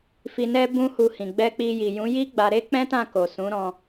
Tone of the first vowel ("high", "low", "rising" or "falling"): low